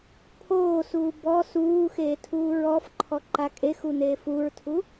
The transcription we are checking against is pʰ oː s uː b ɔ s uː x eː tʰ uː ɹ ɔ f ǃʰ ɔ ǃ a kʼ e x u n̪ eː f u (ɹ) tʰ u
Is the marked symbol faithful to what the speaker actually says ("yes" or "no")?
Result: yes